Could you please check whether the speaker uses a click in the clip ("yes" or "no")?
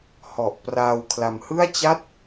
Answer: no